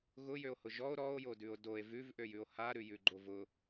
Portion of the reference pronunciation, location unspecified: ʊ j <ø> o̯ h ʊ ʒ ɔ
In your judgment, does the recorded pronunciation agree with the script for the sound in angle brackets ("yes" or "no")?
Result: yes